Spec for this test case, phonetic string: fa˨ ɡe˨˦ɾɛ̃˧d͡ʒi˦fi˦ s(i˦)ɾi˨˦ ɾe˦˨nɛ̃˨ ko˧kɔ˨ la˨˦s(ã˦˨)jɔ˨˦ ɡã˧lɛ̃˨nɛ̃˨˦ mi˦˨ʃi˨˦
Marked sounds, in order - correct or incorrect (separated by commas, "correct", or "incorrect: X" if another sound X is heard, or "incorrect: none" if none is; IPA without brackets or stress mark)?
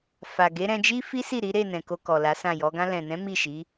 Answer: incorrect: i˦˨, correct